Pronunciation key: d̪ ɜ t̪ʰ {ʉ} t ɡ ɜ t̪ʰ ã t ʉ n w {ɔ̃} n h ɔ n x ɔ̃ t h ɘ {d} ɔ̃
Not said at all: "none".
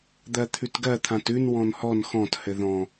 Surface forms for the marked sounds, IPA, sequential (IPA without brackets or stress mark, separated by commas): ʉ, ɔ̃, ð